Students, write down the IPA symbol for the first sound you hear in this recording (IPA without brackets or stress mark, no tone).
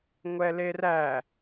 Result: ŋʷ